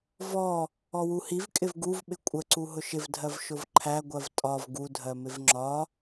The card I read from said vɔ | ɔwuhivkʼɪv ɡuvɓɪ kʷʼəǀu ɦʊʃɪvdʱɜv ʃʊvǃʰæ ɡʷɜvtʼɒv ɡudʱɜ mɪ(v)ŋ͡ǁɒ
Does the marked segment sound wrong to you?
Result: no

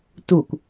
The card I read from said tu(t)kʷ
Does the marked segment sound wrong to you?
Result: yes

